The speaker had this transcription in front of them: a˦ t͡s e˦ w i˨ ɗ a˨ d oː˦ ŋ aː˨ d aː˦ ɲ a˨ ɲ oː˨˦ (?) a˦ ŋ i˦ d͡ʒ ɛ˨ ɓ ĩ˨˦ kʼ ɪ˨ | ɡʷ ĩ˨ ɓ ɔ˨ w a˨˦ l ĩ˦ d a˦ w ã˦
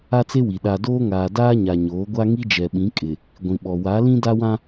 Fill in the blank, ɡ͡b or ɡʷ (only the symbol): ɡʷ